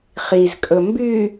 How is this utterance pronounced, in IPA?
χ i z kʼ ɵ m b y

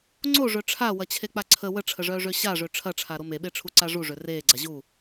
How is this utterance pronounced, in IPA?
ŋ͡ǀ o ʐ œ ʈ͡ʂʰ a w ɐ t͡ɕʰ e k͡p a ǀʰ ə w ə ʈ͡ʂʰ ə ʐ œː ʐ ø ɕ a ʐ ø ʈ͡ʂʰ ɐ ʈ͡ʂʰ a ɾ o m e ɓ e ʈ͡ʂʰ u ǀ a ʐ u ʐ ø r eː ɡ͡ǀ a ʑ u

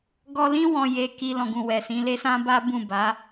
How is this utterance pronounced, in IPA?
ɡ ɔ˧ l ĩ˦ w ɔ̃˧ j e˧ k i˧ l ɔ̃˨ ɡ ũ˨ w ɛ˨ s ĩ˨˦ l e˦ s ã˦ b a˦ b ũ˦˨ b a˨˦

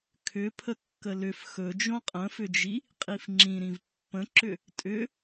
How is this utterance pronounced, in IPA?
kʰ ʏ pʰ ə kː ə l ʏ f x ɵ d͡ʒ õ qʼ ə̃ f ʏ d͡ʒ i | qʼ i f ŋ͡ǁ ĩ ɾ ĩ v pː ə̃ ǁ ʏ | tʼ ʏ

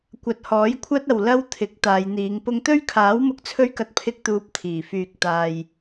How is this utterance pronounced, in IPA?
kʷ ɐ˧ t̚ h ɔː˨˥ j kʷʰ ɐ˥ t̚ ɐ˨ w l ɐ˥ w t̪ʰ ɪ˨˥ k̚ t̪ aː˨˧ j n̪ iː˨˧ ŋ p ʊ˥ ŋ t̪ ɵ˥ ɥ kʰ aː˨˥ w m ʊ˧ k̚ t͡sʰ ɵ˥ ɥ k ɐ˧ t̚ pʰ ɪ˥ k̚ t̪ uː˧ p̚ t̪ʰ iː˨˩ f yː˨ k̚ t̪ aː˨ j

